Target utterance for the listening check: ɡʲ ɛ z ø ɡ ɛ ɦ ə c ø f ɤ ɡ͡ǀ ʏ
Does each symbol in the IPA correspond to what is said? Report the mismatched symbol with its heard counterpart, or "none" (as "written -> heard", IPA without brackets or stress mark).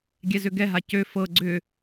ə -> a